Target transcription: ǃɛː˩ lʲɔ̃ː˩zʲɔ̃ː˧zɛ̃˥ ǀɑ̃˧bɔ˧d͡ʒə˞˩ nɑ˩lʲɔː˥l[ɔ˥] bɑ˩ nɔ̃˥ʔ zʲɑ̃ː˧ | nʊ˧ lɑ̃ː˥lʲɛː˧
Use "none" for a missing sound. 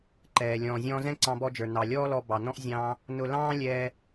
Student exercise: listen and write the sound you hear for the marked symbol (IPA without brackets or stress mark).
ɔ˧